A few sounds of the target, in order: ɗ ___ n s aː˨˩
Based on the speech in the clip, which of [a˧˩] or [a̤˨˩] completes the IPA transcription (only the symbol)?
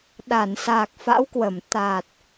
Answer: a˧˩